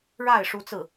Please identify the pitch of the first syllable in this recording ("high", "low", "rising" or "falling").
falling